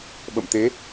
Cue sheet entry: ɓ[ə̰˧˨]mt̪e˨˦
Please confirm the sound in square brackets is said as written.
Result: yes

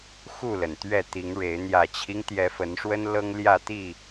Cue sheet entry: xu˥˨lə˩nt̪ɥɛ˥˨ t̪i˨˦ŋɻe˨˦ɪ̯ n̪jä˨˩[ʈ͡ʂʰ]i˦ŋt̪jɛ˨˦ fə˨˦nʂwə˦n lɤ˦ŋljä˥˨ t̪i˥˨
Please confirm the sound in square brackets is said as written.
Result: no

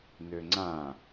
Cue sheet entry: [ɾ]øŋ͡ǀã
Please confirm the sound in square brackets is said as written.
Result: no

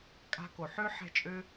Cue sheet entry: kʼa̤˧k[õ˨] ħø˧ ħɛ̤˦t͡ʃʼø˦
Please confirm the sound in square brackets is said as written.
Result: no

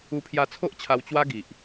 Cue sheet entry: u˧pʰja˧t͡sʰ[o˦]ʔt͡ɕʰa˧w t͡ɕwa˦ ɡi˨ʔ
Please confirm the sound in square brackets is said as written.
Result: yes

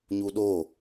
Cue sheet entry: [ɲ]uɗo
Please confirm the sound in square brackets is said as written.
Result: yes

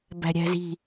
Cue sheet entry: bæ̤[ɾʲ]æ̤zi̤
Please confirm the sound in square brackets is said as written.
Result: yes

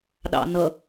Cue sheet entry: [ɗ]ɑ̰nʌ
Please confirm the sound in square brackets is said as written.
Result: yes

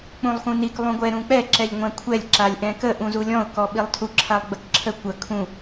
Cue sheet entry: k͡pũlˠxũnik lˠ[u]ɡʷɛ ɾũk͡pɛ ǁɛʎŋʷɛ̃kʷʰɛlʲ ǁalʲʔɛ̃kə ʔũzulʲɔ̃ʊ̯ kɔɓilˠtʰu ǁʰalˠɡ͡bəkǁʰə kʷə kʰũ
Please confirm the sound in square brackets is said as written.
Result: no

